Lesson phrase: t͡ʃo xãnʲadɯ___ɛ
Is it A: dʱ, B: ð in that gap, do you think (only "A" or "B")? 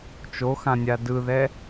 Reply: B